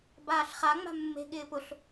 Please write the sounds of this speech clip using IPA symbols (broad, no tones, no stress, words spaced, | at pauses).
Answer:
baːɬχa ŋ͡ma̤mːe̤ ɠɪːpʊɬ